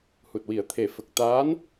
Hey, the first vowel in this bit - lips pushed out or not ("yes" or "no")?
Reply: yes